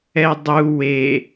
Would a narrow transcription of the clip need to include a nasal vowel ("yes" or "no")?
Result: no